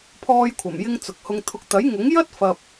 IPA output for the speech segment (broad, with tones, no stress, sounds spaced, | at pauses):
pʰ ɔː˧ j kʷʰ ɐ˨˩ m j ɪ˧ ŋ t͡s ʊ˨ k̚ h ʊ˧ ŋ t̪ʰ ʊ˧ k̚ t̪ ɐ˨˥ j ŋ ʊ˨˥ ŋ j ɐ˥ t̚ f ɐ˨ p̚